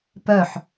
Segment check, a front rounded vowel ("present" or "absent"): present